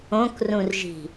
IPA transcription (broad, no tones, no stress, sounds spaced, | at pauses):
õ k r ũ r ʒ i̤